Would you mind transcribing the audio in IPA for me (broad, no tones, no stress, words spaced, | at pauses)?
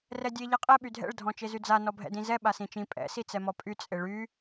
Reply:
rɛdʲe ʎaqʼɛ ɓydʱɛ̰ɭ dʱɔ̃t͡ʃezyd͡za nɔbʱɛ̰dĩzɛ ɓasĩt͡ʃĩ pʼɛ̰ sit͡sɛmɔpʼy t͡sʼeɭy